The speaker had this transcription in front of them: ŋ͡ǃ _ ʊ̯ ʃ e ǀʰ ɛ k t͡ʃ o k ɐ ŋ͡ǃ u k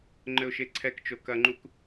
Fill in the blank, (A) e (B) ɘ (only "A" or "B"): B